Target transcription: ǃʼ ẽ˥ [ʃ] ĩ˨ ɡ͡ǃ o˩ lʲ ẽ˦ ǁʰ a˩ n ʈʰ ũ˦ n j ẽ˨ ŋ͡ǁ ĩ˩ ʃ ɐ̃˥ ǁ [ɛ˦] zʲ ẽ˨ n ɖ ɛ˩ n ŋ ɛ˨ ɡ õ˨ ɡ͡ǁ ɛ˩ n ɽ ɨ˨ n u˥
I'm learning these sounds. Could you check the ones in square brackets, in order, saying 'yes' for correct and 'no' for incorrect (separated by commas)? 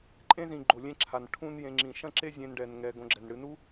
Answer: no, no